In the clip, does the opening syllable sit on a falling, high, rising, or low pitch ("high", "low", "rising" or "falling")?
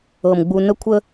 low